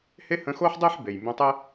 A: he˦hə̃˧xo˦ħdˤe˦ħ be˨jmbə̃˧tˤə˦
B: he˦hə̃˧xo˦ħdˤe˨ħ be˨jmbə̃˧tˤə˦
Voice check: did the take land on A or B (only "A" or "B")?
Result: A